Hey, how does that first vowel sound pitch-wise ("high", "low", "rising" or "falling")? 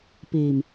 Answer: low